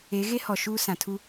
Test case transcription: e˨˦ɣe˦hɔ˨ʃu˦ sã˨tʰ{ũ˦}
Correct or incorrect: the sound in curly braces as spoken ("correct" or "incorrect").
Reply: incorrect